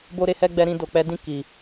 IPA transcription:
b o˦ ɾ e˦ h ɛ˦ ɡ͡b ɛ˧ ɾ ĩ˧ d o˨ k͡p ɛ˨˦ d ĩ˦˨ k i˨

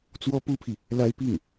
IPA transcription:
t͡s w ɔ˥ p u˥ pʰ i˨ | l a˥ ɪ̯ p i˥˩ ŋ

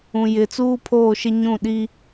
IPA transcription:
ũ˨ j ɪ˨ t͡s uː˦ pʰ oː˦˨ ʃ ɪ˦ ɲ ũ˦˨ ɗ i˦

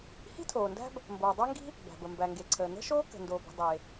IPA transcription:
h i̤˥ tʰ oː˩ n d æ̤˥ b | m b oː˩ dˤ æ˥ ŋ ɡ i̤˥ | b æ̤˩ b ə˩ m b æ˩ ŋ ɡ e˩ ǀʰ əː˩ n ə̤˥ ʃ oː˥ k ə̤˩ n d oː˩ b i̤˩ dˤ e˩

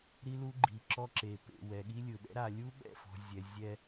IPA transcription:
ɾ i˦ l u˦ ɡ͡ǃ i˨ ǁ ɔ˦ ǁ e˨ p ḛ˨ w ɛ˨ ɠ i˦ lʲ ɯ˨ ɗ ɛ̰˦ ɾ a˨ lʲ u˦ ɓ ɛ̰˦˨ f ɔ̤˨ zʲ ɛ˨ zʲ ɛ˦

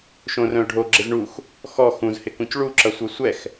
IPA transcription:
ʃ õ r œ̃ ʊ̯ ɖʱ o ɡ͡ǁ ɪ z ɳ u x | x ɔ x ũ z h ɪ k ũ c ɭ u ǁ ʌ sʷ œ sʷ ɛ x

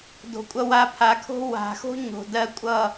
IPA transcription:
d o̤˨ kʷʼ ʌ˧ w a˧ pʰ a˨˦ kʰ o̤˦ w a̤˨ x o̤˦ ɲ o̤˨ d ɜ˦ kʷʼ ʌ˦˨

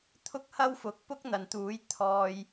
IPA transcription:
t̪ʰ ʊ˥ k̚ h ɐ˥ w f ʊ˨˥ k̚ p ʊ˥ k̚ n̪ ɐ˨ n t̪ uː˨˥ j t̪ʰ ɔː˧ j

